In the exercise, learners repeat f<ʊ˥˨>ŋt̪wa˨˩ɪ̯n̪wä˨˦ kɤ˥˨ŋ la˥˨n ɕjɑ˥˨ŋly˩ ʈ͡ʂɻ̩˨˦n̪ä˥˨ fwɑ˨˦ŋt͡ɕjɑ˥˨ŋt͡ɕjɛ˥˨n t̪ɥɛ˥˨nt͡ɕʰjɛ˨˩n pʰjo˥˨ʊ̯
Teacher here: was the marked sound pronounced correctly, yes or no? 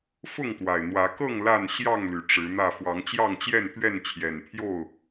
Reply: yes